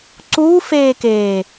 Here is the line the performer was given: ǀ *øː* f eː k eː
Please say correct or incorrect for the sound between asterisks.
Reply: incorrect